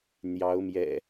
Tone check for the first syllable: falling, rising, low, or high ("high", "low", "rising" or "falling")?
rising